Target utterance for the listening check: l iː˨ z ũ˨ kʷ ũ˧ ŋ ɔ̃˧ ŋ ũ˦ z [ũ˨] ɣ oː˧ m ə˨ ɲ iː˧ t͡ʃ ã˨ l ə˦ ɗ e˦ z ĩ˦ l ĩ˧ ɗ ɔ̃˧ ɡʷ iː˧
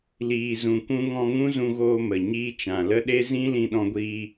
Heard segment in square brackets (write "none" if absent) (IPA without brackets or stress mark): ũ˧